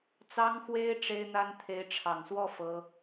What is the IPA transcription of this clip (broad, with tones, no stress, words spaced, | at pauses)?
t͡sɑ˥ŋxwe˥ɪ̯ ʈ͡ʂe˥ɪ̯n̪a˥n t̪ʰe˧˥ɪ̯ʈ͡ʂʰɑ˨˩ŋswɔ˥˩ fɤ˥